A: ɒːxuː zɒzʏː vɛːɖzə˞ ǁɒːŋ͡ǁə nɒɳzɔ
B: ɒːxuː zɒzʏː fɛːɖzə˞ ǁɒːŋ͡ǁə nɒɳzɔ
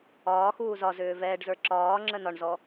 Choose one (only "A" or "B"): A